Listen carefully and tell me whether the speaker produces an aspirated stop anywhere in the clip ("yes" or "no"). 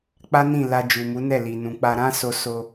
no